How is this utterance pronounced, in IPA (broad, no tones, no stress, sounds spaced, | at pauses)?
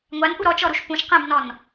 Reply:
ŋʷ a n ʔ u ɾ ɔ t͡ʃ ɔ ɾ u ʃ p ũ ʃ q ɛ̃ b n ɔ n